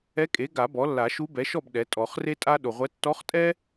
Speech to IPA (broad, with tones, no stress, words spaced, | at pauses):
ɛ˧˥kʼe˩˥ɡa˨˩˦ bɔ˩˥ lːa˨˩˦ʃu˧˥bɛ˩˥ʃɔ˥˨b ɗɛ˩˥ tʼɔ˨˩˦χre˥tʼa˥ ɗo˨ʁʷɛ˧˥ tːɔ˧˥χtʼɛ˥